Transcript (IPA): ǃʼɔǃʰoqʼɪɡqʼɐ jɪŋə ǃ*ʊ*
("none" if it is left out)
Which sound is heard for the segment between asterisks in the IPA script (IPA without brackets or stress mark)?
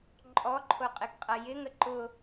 ʊ